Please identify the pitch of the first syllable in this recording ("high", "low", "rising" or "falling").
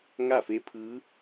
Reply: falling